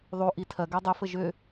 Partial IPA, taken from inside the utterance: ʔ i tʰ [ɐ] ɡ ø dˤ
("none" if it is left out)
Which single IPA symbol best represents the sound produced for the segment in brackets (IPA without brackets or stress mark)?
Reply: ɐ